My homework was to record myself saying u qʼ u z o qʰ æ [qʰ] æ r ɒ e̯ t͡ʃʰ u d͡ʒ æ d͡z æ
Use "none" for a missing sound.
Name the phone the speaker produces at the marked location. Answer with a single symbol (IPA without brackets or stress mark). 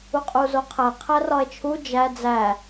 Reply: qʰ